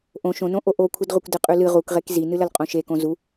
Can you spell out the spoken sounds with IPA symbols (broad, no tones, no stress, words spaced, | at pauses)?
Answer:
ʔõ ʃõnõʔo ʔokʷʰɨdʁʷikʷ dɨqʼʉlɨ ʁukʁek zinɨlɐlqʼõ ʃekõ zu